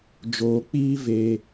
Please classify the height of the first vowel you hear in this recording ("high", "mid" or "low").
mid